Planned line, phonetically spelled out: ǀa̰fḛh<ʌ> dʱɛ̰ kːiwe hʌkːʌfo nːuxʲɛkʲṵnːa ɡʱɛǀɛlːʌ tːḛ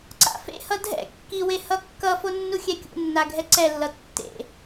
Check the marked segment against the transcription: correct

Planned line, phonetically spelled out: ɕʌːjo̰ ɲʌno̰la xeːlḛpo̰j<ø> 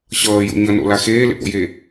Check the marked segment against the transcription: incorrect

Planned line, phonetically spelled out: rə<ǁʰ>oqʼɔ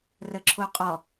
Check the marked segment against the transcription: correct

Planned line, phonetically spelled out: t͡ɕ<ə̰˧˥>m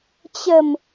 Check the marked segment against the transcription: incorrect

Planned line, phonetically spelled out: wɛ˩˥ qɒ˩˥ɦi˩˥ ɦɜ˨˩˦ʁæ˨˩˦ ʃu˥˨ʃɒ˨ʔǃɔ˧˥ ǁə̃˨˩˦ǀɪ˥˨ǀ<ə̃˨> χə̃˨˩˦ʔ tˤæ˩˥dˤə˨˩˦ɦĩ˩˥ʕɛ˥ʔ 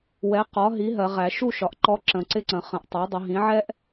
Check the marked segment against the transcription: incorrect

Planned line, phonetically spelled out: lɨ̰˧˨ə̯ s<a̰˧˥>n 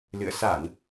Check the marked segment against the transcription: incorrect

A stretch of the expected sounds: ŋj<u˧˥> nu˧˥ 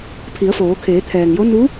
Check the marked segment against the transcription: incorrect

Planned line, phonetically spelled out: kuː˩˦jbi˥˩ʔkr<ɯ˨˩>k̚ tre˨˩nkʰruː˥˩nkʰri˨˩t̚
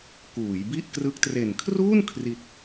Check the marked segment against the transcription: incorrect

